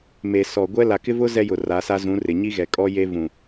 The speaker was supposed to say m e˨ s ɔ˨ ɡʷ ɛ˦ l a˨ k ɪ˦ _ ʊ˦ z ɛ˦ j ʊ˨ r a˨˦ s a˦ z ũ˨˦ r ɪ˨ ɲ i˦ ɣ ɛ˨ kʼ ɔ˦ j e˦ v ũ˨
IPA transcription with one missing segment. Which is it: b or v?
v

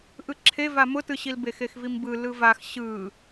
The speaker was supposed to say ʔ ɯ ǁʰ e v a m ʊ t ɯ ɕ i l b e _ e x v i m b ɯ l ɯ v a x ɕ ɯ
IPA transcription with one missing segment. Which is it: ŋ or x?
x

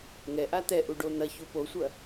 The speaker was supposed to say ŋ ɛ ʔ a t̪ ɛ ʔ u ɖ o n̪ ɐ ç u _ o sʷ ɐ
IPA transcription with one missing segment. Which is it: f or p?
p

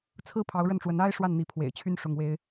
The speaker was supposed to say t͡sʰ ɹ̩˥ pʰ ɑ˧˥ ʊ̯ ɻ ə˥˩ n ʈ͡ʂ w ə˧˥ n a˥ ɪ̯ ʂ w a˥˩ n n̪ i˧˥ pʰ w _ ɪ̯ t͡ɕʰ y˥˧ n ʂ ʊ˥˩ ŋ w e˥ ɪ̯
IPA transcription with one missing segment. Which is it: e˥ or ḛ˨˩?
ḛ˨˩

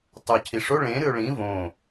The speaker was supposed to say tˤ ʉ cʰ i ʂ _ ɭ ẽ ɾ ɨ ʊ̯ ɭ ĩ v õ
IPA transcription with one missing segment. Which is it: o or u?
o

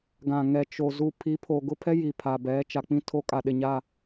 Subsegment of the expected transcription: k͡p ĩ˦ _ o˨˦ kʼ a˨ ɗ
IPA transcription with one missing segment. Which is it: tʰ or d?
tʰ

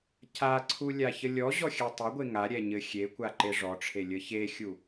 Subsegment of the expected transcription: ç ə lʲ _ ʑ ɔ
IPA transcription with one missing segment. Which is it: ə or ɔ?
ɔ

